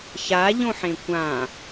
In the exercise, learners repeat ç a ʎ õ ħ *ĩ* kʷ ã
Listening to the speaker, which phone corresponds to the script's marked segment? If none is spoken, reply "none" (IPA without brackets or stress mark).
ẽ